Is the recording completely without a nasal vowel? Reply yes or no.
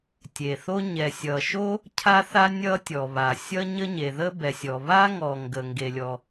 yes